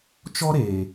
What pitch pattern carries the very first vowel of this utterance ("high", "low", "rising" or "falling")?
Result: high